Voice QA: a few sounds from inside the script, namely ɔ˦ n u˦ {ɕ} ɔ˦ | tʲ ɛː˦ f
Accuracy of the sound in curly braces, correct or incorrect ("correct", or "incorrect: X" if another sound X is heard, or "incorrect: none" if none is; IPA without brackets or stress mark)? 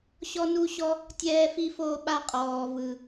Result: correct